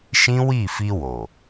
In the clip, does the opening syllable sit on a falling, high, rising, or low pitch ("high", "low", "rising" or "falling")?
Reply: high